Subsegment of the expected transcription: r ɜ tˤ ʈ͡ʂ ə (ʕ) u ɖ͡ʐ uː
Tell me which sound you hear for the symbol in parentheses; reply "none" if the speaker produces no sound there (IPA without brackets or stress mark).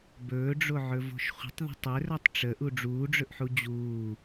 ʔ